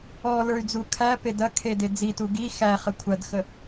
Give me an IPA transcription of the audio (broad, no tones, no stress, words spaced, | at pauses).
ɔlə˞y̯d͡zu kʰæpe dɐkʰede d͡zitu ɡi xæχə kʷʰɐdxə